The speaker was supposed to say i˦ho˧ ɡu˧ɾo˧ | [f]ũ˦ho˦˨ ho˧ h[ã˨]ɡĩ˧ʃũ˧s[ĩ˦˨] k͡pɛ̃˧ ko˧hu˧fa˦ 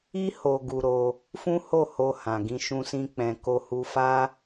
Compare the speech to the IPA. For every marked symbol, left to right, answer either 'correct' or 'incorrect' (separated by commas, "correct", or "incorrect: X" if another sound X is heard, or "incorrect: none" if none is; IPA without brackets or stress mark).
correct, correct, incorrect: ĩ˧